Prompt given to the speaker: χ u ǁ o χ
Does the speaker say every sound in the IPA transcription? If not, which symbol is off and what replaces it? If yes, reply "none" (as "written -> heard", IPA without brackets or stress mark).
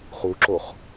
none